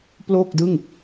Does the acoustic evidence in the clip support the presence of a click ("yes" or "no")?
no